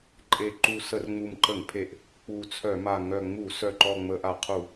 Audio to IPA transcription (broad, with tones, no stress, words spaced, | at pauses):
ǃʼe˨˩ ǃu˨˩ sə˧˩˧rŋ͡mu˨˩mǃə˧˩˧ŋpʰe˨˩ʔ | k͡pu˨˩t͡sʰœ˧˩˧ma˨˩ ŋœ˨˩ŋ͡mu˧˩˧ sœ˨˩ǃɔ˨˩ ŋ͡mə˧˩˧ʔa˧˩˧qʰu˧˩˧